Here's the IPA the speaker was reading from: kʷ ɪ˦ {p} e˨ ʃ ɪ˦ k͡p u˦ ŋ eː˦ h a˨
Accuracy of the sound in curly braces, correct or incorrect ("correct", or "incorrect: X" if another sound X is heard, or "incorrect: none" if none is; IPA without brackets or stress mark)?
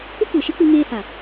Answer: incorrect: kʷ